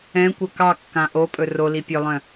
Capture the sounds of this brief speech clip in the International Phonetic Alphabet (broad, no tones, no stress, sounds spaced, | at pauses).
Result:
ɛ̃ kʷ ə k ɑ kː ã ʔ o pʼ ɵ r o l i pʲ œ lˠ œ̃